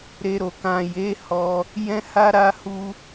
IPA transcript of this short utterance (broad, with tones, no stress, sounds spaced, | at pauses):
ɾ e˧ ɾ o˨ k ã˨ j e˨˦ h ɔ˧ | j ɛ̃˦ h a˦ ɾ a˦ h u˦